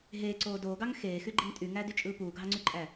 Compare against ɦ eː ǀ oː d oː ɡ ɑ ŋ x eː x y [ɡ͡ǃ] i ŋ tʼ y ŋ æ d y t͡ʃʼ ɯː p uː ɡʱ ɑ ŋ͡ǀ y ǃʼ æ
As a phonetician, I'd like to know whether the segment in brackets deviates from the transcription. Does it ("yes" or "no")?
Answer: no